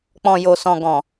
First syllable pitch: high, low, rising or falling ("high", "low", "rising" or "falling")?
low